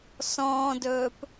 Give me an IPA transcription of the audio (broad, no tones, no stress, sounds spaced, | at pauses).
s ɔ̃ː d ɵː p